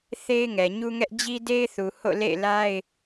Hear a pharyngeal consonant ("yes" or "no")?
no